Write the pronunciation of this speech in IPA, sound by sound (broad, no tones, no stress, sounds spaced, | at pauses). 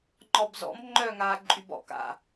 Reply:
ŋ͡ǃ ɔ b z ɔ̰ m ŋ͡ǃ œː ŋ aː ǃʼ y b ɔ̰ k a̰